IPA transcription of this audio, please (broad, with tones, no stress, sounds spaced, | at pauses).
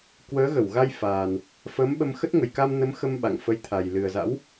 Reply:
k w əː˨˦ ɣ ə˧˩ w ɣ a˧ j f aː˨˩ n | f əː˨˦ m ɓ ə˧ m x ə˦˥ t̚ ŋ ə˨˩ j k a˧ m n ə˨˦ m x ə˧ m ɓ a̰˧˨ ŋ f ə˧ j t̪ʰ a˨˩ j l ɨ˨˩ ə̯ z a̰˧˥ w